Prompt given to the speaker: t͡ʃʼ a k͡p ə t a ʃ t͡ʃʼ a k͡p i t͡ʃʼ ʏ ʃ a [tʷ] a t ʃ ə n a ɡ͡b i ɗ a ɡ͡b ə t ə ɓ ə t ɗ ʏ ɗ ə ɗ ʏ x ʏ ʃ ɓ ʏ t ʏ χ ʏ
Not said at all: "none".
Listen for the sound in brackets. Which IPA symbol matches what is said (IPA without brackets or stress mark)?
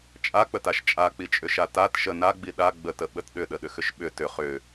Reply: t